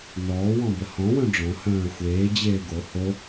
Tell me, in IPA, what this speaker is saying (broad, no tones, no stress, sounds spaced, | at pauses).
n ɔː w ɔ̃ b ə h ɔ̃ w œ̃ ɖ͡ʐ ɔ̃ h œ̃ː ə̯ xʷ eː d͡ʑ eː ɡ o h o